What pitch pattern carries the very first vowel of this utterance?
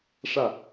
falling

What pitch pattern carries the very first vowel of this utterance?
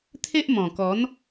high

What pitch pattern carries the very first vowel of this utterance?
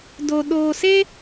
low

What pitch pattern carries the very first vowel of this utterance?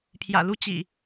low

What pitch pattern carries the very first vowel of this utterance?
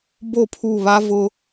falling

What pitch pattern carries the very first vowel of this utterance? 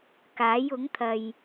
rising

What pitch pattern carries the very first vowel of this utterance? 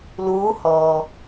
rising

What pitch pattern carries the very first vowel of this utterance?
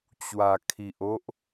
low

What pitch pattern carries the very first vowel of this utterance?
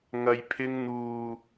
low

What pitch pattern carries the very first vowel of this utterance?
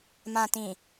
low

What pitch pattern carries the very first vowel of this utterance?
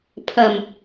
low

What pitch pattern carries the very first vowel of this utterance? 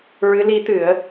rising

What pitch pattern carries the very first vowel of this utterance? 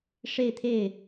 falling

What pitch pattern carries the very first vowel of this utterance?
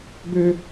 high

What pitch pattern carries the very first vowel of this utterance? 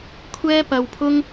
high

